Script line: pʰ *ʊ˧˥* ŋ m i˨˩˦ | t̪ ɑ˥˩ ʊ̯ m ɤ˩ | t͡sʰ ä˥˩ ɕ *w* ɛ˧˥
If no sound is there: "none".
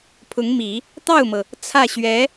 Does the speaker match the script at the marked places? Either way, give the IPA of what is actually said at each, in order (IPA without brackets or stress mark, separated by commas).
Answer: ʊ˧˥, ɥ